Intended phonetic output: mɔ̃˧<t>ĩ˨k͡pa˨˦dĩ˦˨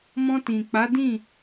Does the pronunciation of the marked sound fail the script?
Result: no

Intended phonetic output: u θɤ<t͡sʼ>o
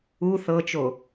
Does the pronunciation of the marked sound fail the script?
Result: yes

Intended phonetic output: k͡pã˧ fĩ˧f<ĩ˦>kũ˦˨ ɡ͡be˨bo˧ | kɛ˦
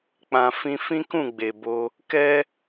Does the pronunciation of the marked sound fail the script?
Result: no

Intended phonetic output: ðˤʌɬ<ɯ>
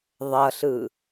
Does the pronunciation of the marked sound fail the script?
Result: no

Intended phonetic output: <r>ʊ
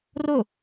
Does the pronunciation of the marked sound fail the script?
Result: no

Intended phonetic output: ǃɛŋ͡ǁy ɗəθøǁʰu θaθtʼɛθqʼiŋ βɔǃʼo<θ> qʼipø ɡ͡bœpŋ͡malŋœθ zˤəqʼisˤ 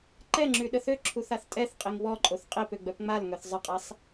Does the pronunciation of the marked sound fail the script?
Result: no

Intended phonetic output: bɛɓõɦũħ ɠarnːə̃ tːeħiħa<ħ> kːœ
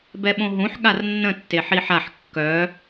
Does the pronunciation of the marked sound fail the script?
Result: no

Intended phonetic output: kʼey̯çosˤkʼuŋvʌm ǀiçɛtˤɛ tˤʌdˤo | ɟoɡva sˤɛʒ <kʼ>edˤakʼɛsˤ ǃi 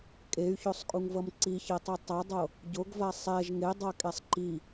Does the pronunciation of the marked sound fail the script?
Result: yes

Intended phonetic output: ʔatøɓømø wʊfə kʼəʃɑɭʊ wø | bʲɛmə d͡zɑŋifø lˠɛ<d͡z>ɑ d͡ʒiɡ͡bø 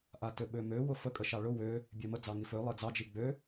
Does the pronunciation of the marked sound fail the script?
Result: no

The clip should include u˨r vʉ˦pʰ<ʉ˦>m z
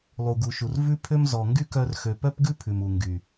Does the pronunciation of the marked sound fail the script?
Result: yes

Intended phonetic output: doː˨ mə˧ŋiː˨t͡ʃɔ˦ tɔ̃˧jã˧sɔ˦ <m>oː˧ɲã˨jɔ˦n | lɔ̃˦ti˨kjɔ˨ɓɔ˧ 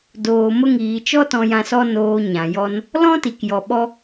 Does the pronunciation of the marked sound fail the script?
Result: yes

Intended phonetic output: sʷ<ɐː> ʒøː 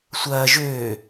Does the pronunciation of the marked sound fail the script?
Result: no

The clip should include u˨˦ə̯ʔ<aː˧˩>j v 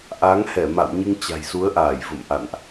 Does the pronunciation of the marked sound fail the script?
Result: no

